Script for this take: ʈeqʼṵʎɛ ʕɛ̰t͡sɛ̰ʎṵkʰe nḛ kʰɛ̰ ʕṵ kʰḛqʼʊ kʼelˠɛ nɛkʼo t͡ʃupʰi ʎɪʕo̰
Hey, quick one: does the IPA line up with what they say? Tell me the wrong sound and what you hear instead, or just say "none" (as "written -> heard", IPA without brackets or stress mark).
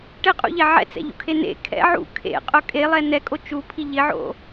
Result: none